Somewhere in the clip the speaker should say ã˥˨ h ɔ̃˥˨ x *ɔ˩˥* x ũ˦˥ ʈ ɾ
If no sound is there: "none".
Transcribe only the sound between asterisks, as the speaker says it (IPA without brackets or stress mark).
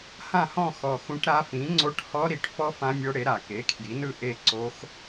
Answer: ɔ˨˩